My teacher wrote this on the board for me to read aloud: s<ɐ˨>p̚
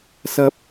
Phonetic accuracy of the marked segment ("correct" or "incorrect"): incorrect